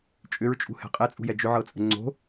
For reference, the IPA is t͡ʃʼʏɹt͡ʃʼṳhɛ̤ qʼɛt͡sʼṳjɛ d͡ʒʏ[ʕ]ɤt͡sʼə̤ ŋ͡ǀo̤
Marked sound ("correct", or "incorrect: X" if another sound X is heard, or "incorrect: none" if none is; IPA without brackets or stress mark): correct